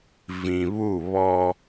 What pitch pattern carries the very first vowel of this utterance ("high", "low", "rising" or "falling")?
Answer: low